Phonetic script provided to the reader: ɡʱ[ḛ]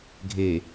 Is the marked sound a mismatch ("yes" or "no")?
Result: yes